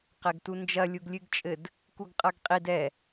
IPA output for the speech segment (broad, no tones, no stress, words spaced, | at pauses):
qɛɡtund͡ʒɐ lʲuɡlʲɨɡt͡ʃʼɘd | kuɡqʼɐɡqʼid ɛ